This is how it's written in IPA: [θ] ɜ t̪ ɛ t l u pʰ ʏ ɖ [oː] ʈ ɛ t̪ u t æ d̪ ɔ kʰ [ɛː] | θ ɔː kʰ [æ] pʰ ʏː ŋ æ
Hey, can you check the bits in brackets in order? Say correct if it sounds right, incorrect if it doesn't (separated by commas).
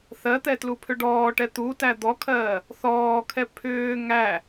correct, incorrect, incorrect, incorrect